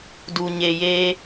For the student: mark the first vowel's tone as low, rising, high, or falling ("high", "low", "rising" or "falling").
low